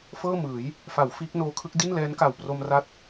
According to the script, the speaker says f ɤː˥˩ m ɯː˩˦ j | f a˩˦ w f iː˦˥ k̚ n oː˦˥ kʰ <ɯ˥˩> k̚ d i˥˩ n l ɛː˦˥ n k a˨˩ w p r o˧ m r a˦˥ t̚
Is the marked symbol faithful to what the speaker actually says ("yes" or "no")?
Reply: no